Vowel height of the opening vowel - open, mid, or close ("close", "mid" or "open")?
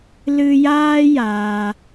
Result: close